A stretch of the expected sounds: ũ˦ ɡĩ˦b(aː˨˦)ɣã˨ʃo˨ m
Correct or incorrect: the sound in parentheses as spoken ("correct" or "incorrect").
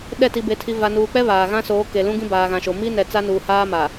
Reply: incorrect